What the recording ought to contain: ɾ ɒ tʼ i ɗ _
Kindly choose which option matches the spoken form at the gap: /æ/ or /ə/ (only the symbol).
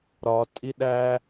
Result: æ